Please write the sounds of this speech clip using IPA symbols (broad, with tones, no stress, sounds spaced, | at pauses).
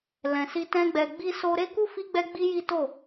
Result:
l ɛ̃˨ s i˧ t ɛ̃˦ ɡ͡b ɛ˧ ɡ͡b i˧ s o˧ ɾ e˦ k u˦ f i˦ ɡ͡b ɛ˦ ɡ͡b i˦ j i˦ t o˦˨